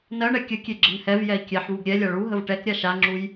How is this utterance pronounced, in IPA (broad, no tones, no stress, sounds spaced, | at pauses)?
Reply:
n ɜ ɳ ɛ kʲ ə kʲ e ɡ͡ǁ ə n h ɛ v j ɛ i̯ kʲ ɛ ħ v u ɡ ɾʲ ɛ lʲ a ɭ u ɦ ə v ʈ ɛ k ɾʲ a ʃ a ŋ͡ǁ u j